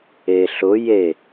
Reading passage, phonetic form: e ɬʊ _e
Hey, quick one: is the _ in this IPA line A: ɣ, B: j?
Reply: B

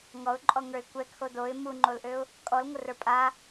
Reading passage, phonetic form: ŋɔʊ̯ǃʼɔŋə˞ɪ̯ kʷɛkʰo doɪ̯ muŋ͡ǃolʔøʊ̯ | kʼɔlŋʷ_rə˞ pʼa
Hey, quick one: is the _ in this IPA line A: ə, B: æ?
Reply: A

